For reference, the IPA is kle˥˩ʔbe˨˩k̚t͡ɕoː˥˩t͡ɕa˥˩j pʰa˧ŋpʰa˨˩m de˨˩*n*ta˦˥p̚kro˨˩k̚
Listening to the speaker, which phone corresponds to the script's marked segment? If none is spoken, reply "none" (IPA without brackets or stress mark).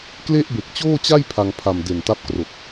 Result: n